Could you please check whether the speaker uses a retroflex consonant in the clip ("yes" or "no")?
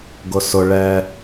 yes